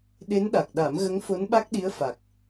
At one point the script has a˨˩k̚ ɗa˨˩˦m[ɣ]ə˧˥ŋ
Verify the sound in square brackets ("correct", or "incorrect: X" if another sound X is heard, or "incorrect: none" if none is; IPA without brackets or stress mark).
correct